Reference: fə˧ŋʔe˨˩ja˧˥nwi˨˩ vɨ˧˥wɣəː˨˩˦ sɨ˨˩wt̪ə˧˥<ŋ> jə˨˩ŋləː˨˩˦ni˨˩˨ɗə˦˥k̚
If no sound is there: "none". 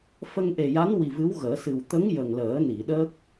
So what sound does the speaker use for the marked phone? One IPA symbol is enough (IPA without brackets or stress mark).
ŋ